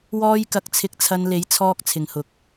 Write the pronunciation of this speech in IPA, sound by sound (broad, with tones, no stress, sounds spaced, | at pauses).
w ɔː˥ j k ɐ˧ k̚ t͡sʰ ɪ˧ k̚ t͡sʰ ɐ˧ n l e˨˥ j t͡sʰ ɔː˧ k̚ t͡sʰ ɪ˨ ŋ h ʊ˨˥ k̚